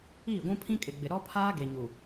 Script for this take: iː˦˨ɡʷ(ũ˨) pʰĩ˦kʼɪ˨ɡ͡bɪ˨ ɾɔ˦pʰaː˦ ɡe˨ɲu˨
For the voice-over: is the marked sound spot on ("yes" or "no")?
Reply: no